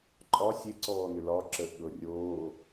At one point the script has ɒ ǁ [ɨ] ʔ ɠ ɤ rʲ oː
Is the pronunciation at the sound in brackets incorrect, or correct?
incorrect